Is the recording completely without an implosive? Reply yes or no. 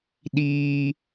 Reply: no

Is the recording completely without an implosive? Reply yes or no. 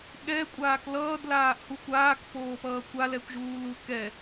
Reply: no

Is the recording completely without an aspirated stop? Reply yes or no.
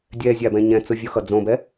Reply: yes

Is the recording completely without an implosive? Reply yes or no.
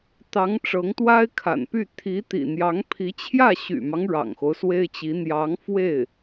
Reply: yes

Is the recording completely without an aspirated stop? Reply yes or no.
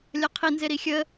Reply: no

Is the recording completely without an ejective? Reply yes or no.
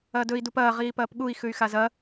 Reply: yes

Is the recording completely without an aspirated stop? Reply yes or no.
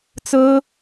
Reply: yes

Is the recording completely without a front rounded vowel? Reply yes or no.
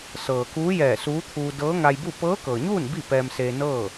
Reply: yes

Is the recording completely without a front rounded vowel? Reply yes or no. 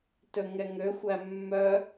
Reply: no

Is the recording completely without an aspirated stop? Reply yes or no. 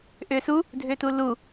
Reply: yes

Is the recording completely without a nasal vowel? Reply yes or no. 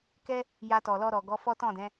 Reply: no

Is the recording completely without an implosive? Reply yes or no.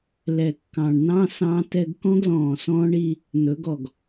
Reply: yes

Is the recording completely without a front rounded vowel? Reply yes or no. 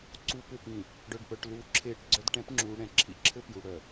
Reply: no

